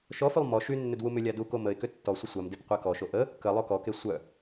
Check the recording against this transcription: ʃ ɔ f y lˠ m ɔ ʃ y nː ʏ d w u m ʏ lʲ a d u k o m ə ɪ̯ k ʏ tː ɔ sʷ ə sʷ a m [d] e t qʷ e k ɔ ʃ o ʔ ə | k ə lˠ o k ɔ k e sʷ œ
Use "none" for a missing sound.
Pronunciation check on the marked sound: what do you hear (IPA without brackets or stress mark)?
d